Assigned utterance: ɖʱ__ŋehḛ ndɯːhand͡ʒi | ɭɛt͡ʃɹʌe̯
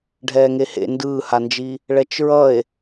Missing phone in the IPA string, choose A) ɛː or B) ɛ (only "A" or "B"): A